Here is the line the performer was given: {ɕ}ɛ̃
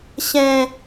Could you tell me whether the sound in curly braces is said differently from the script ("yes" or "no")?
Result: no